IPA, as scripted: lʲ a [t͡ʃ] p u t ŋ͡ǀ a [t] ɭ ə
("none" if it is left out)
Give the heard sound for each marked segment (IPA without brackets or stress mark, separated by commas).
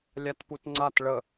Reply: t, t